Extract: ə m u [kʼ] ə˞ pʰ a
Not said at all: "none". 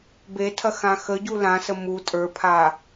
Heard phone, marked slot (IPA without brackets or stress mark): tʼ